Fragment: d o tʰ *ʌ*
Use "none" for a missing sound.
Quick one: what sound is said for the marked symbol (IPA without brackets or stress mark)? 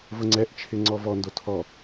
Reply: ɔ